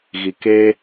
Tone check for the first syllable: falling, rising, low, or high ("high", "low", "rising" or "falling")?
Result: low